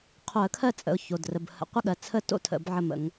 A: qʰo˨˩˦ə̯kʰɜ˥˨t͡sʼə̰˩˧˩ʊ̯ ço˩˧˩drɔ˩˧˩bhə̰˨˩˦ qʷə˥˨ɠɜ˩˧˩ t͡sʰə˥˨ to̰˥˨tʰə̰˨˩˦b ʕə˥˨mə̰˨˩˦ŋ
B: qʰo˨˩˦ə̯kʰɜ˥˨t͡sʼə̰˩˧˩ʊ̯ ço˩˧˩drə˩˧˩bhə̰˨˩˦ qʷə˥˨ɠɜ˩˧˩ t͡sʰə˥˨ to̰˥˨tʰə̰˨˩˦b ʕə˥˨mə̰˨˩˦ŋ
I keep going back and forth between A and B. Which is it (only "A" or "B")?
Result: B